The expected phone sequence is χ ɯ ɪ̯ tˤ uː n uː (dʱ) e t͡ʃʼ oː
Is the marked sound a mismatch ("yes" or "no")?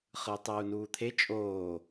yes